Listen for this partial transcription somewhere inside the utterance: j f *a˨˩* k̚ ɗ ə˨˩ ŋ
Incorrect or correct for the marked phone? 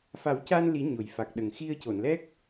correct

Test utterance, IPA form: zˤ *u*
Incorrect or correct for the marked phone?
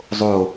incorrect: o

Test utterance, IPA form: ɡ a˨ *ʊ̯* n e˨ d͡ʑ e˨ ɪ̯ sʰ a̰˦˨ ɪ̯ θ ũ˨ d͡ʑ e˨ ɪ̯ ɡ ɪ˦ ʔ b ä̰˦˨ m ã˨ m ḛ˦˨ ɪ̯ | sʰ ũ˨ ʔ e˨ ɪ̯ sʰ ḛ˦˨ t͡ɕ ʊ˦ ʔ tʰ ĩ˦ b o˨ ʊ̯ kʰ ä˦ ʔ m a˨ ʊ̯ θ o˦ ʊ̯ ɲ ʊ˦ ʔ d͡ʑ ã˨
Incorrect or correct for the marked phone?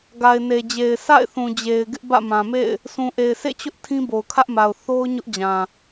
incorrect: ɪ̯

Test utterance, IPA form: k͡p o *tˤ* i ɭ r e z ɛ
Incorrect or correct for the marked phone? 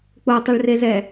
correct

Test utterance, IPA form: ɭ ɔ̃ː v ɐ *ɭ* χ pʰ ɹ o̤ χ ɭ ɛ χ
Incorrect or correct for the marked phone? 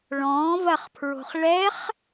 incorrect: none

